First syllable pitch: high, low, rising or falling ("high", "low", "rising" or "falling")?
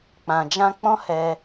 low